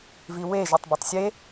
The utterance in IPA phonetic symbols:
viwe ʒetˤbetˤsʲe

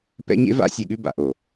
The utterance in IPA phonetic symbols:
pɛ̰˦ɲḛ˦va̰˦ sʲe˨ɠʉ˦ba̰˨ ʔo˨

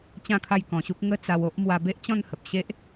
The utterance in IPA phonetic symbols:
t͡ɕã˥˧kʰa˥˧j kɔ̃˧ɕu˦k̚ ŋə˥˧t͡sa˧w o˦ʔ mwa˧be˦ʔt͡ɕɔ̃˥˧nhə˨p̚ ɕe˦ʔ

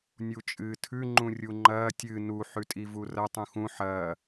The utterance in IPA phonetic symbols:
nʲut͡ʃʼɨːtʰʉ ŋ͡ǃũrʲuŋ͡ǃɐː tʲɨ nu ħʉtʼivurɐ tˤũxũ ħɐː

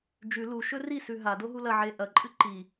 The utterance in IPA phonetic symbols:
d͡ʒʉ luʃɵ risʉ ɦadoɦu lɐʕe ʔɐǃʼɨ ǃi

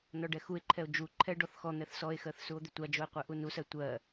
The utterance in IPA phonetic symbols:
nɔɖɛxue̯ǃʰɛo̯ d͡ʒu ǃʰɛ ɖɔθxɔn̪ɛθ sɔe̯xɜθ suo̯d̪ʏtʷad͡ʒoe̯ qʷɛʔunusɜ tʷɜ

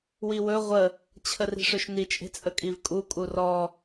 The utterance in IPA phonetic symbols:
wiwɵ ʁʷə | t͡ɕʰəri̤ʂɵʃni t͡ʃʼe̤t͡sʼəkʼivkʼu kʼurɔ

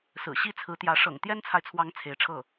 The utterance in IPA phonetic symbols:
sɹ̩˨˩ɕi˥t͡sʰɹ̩˧˥t̪jä˧˥ ʂɤ̰˨˩ŋ t̪jɛ˥nt͡sʰa˨ɪ̯t͡sʰwɑ˧˥ŋ t͡sʰe˧˥ɪ̯ʈ͡ʂʰɤ˥˩

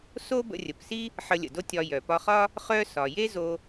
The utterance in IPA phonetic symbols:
so˥ bə̰˧rʲə˩psi˥ | ħə˧lʲə̰˩do˥ tʲɒ˧jœ˩ pɒ˧χɒ˥ | χœ˥sɒ˩ je˥zo˧

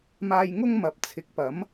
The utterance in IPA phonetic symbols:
maː˧jŋʊ˥ŋ mɐ˨p̚t͡sʰɪ˨˥k̚pɐ˨˥m

